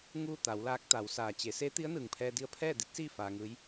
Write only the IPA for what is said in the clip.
ŋuː˥˨t̪a˩˧wlaː˧˥k̚t̪a˩˧w saː˩t͡ɕe˩˧ seː˧˥t̪i˧˥ə̯nɯː˩ŋpʰɛː˧ di˧ə̯pʰɛː˥˨di˧˥t̚siː˥˨ faː˧ŋɯː˧˥j

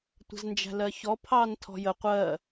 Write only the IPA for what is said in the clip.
tʷə̤znd͡ʒæ̤lɜçɔ pʰɑntʰɔ̤jə qʷɜ

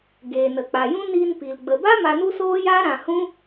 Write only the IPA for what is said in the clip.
ɡeː˨nə˨k͡pa˨jũ˦ niː˧npi˨l ɡ͡bə˨ba˦ ma˧nu˦soː˦ja˦ ɾã˧hũ˦

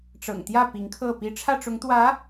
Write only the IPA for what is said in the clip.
ʈ͡ʂɤ̰˨˩ŋt̪jä˥˩ pi˧˥ŋkʰɤ˥˩pi˥ ʈ͡ʂʰä˥˩ʈ͡ʂʊ˧˥ŋt̪wä˧˥

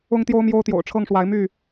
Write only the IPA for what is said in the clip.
ʊ˦ŋt̪jo˦ʊ̯mjo˦ʊ̯ t̪jo̰˨˩ʊ̯ʈ͡ʂʰɤ˥˨ŋʂwa˨˦ɪ̯ my˥˨

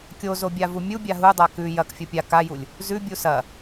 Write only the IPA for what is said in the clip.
kʲozobʲa vumʲubʲa ɦudˤa kʉ jɐk fʲopʲa kajulʲ | zʉ bʲusɐ

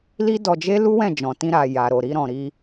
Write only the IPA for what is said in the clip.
li˦dɔ˧d͡ʒe˦ lu˦wɛ̃˦˨ d͡ʒɔ̃˨tĩ˧ɾa˨ ja˨ɾo˨ ɾi˧ɾɔ̃˨ɾi˧

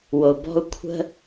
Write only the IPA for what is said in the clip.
wo˨bɔ̤˦u̯ kʷʰə̤˦

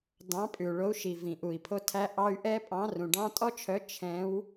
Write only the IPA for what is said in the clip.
dɑ̃˨˦pʼʉ˩u̯ɭo˨˦u̯ʃi˩ vĩ˩ʔu˩i̯pʰo˦tʰæ˦ ʔɑ˦y̯ ʔɛ˦pʼɑ̃˨˦rũ˩ ɖɑ̃˦ tʼɔ˦t͡ʃʰœ˨˦ t͡ʃʰɛ̃˨˦w

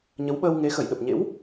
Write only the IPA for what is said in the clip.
ɲə˨˦wɓəː˧wŋe˨˦ xə˧˩jɗə˨˩p̚ɲḛ˧˥w

